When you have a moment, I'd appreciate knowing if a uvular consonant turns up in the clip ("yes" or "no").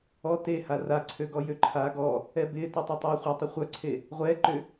yes